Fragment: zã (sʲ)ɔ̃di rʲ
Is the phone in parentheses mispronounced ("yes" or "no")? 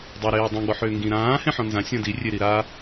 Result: no